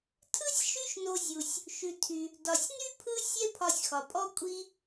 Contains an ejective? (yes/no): yes